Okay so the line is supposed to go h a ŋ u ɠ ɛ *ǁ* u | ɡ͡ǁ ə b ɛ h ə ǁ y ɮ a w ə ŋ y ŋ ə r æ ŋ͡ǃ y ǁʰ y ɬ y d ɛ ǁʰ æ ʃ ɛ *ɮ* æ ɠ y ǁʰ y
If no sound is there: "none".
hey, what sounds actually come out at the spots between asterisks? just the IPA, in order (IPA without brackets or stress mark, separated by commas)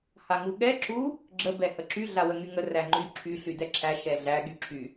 ǁ, ɮ